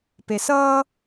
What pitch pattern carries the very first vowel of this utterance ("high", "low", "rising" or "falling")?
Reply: low